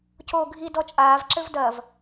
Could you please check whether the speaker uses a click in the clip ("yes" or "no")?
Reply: yes